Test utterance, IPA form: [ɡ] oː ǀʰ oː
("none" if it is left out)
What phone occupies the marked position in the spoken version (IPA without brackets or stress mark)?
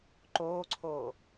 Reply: ǃ